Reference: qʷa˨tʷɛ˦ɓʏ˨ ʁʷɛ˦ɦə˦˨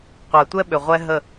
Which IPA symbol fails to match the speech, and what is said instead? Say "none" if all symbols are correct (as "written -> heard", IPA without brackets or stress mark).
none